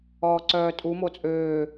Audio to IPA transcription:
ɔː ǀ œː tʼ u m o t͡sʼ øː

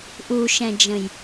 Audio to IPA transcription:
ʔ u ʃ ɛ̃ d͡ʒ ə̃ j

